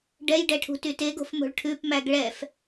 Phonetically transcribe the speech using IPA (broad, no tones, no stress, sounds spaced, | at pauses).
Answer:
ɖ ɛ j ɖ ɛ ʈʰ ṳ t y t e ɡ o̤ f m o̤ ɭ ʈʰ ʉ p m æ ɡ ɭ ɛ f